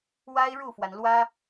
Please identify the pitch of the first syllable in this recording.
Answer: high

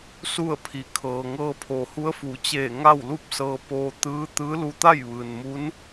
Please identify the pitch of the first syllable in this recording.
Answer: falling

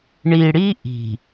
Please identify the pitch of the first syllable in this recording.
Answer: low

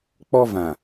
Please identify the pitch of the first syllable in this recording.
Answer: high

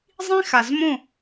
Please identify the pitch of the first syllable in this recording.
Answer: high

